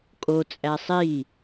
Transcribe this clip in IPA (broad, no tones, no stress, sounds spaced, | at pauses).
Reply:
kʼ o t͡sʼ æ sˤ i